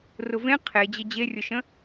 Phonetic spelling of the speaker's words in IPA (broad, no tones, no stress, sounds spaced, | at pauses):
r ʊ v ẽ qʰ e d͡ʑ ɘ d͡ʑ e rʲ ʊ ʃ ə̃